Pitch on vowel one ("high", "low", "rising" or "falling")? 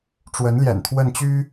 rising